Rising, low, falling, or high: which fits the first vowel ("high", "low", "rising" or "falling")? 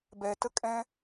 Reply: low